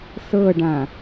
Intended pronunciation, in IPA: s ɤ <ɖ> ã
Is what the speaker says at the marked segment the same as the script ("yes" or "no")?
yes